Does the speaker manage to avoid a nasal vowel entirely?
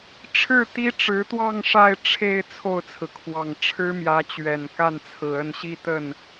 yes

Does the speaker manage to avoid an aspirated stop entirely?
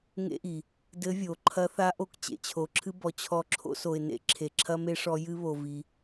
no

